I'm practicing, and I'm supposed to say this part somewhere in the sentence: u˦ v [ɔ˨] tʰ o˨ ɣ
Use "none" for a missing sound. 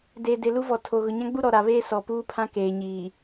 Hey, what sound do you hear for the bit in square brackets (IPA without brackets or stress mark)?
ɔ˨